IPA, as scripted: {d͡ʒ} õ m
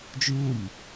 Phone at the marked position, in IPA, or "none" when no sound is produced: d͡ʒ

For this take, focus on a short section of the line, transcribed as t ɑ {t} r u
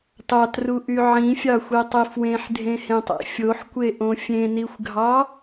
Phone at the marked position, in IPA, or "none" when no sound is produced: t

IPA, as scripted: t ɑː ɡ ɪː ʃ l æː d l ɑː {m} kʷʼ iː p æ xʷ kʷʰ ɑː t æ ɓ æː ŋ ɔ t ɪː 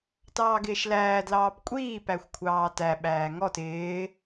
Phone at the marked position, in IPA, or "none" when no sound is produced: p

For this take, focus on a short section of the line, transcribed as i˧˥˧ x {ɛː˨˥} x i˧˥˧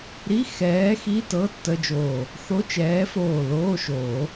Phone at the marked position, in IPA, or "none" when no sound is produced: ɛː˨˥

